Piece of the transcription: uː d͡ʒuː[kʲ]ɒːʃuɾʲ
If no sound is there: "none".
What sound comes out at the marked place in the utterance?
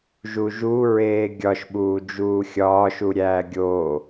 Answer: xʲ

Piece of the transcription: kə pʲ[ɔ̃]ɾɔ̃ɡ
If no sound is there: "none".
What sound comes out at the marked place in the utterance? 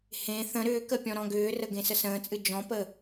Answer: ɔ̃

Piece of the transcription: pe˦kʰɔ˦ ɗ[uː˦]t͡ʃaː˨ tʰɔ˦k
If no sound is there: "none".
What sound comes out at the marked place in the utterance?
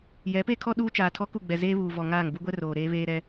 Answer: uː˦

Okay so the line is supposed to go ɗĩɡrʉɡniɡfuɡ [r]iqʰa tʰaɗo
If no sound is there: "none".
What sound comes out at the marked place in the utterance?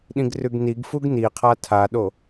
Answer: n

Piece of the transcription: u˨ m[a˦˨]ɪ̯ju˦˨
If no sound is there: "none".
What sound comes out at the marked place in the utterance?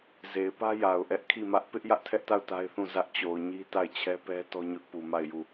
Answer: a˦˨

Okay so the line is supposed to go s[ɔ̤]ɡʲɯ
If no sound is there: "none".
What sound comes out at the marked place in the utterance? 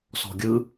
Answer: ɔ̤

